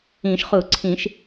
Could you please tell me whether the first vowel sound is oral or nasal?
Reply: nasal